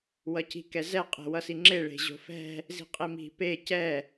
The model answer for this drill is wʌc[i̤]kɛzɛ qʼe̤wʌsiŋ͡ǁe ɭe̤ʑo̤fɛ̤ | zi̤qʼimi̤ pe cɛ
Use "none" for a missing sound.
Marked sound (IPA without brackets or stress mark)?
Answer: i̤